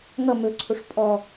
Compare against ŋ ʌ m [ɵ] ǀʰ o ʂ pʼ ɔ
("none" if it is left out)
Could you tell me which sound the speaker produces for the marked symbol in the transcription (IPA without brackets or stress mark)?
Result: ɵ